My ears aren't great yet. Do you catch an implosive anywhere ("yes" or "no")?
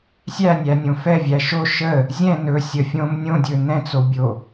no